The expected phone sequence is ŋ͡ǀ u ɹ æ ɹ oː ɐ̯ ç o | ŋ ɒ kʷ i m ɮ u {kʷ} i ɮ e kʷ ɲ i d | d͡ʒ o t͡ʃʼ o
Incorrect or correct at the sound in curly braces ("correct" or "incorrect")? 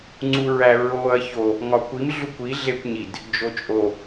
correct